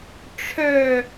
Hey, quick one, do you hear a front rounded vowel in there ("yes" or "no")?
yes